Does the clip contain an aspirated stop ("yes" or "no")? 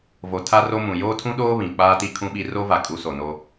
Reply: yes